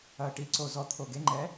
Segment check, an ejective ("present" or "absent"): absent